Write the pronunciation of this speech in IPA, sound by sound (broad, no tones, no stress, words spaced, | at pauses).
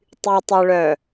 tˤytˤuɭœ